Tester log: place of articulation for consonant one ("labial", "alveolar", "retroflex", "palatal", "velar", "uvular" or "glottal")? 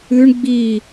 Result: retroflex